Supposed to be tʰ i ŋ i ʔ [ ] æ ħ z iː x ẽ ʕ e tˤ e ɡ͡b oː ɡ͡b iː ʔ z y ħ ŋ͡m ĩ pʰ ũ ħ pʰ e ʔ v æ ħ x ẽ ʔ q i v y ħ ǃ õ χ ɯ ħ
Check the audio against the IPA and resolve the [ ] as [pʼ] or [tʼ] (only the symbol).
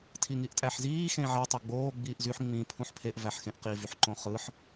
tʼ